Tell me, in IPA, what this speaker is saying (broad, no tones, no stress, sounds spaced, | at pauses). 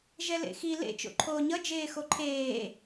ʒ ɛ l ḛ x i l ḛ t͡ʃ o̰ ǃʰ oː ɲ ʌ d͡ʒ eː x o ǃʰ eː